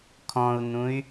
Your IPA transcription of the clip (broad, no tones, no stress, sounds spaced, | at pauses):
kʰ ɔ̃ u̯ n̪ ũ y̯